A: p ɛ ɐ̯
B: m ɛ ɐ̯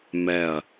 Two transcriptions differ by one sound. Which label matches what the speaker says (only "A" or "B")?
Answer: B